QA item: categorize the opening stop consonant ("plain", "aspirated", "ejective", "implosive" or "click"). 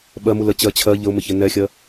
implosive